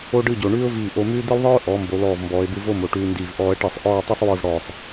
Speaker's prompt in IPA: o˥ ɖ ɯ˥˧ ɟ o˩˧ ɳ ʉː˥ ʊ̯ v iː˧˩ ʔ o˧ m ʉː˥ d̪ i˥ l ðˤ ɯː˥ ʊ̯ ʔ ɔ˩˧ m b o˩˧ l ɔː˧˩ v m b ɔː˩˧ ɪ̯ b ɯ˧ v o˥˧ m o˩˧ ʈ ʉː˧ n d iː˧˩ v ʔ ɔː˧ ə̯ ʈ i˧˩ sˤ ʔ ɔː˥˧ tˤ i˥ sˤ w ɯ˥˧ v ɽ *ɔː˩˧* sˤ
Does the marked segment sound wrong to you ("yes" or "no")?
yes